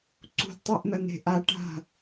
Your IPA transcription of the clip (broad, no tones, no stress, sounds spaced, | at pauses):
ǀ ṳ d tˤ e ʔ n̪ ɐ n e̤ ʔ a ʈ a̤